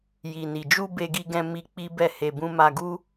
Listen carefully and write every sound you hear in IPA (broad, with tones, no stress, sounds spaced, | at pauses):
j i˨ n i˨ d͡ʒ u˧ b e˧ ɡ i˧ ɡ ɛ̃˧ m i˧ k͡p i˦ b ɛ˦˨ h e˧ b ũ˦ m a˧ ɡ u˦